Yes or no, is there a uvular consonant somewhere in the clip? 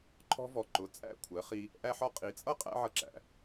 yes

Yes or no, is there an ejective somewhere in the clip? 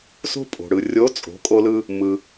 yes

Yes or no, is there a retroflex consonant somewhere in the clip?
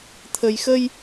no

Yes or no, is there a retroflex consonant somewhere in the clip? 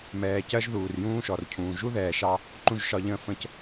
no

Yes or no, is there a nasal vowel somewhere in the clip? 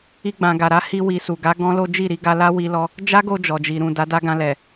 yes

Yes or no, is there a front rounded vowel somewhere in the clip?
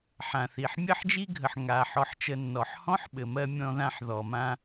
no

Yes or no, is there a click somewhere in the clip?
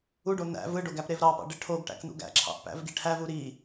yes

